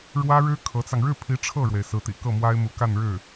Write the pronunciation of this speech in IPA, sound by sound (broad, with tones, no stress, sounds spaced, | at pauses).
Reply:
ɻ w ä˥ ɻ ɻ̩˥ kʰ ɤ˧˥ t͡s ɑ˧ ŋ ɻ ɻ̩˥˩ pʰ i˧˥ ʈ͡ʂʰ ɤ˥˩ ɻ w e˩ ɪ̯ s ɹ̩˧˥ t̪ ḭ˨˩ k ɤ˥˩ m w a˥ ɪ̯ m u˧˥ k a˥˧ n ɻ ɻ̩˥˩